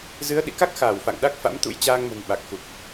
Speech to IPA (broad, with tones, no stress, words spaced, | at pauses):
zɨ˨˦ə̯ɗḭ˧˨ka˦˥k̚xaː˧˩w fa̰˧˨ŋɗa˦˥k̚ fa̰˧˥mt̪ṵ˧˥j t͡ɕaː˧ŋmə̤˨˩n ɓa˨˩k̚xu˨˩k̚